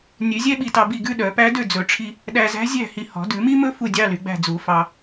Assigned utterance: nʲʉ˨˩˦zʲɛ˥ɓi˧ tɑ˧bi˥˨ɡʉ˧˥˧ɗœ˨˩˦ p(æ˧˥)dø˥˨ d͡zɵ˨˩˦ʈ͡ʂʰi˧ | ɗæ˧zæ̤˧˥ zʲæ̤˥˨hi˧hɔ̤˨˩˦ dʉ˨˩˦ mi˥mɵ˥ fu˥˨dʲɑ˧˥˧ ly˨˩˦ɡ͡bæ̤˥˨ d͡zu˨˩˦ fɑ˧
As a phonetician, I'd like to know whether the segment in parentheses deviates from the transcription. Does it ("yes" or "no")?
no